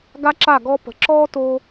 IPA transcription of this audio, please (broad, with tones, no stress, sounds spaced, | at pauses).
ɡ a˦ ǁ a˦˨ ɡ ɔ˦ p ə̤˨ ǁ ɔː˦ t o˧